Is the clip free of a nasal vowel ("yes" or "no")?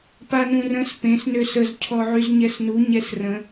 no